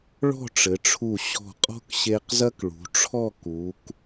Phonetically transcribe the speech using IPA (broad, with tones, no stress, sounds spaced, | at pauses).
ɭ ɔ̤˥˧ ʈ͡ʂ ɘ˩˧ ʈ͡ʂʰ u˧˩ ɕ ɔ̤˧˩ qʼ ɔ̤˥ k ɕ e˧ q z ɐ˥ k ɭ ṳ˩˧ ʈ͡ʂʰ ɔ˥˧ k u˩˧ k